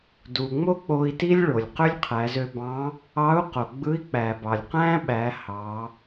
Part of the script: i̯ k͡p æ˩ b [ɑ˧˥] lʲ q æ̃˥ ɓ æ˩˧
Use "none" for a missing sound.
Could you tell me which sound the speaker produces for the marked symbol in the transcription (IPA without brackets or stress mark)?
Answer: ɑ˩